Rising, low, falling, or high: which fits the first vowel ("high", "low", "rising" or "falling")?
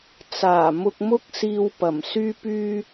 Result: low